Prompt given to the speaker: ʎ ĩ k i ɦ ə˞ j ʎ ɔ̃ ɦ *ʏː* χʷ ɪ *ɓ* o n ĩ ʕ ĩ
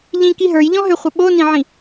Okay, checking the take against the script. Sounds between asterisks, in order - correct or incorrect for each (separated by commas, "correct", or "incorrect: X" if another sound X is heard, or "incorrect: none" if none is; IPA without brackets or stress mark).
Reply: incorrect: ʏ, correct